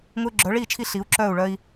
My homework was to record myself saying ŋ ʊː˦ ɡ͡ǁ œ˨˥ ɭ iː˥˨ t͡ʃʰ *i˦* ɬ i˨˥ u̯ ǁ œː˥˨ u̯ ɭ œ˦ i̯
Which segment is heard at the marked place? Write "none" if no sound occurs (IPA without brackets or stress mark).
i˦